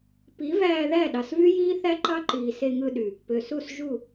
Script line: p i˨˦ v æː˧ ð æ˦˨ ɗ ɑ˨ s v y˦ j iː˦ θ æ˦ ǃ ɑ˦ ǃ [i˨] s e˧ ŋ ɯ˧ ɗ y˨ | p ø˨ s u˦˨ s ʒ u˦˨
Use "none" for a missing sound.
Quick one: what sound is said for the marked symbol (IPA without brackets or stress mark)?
iː˨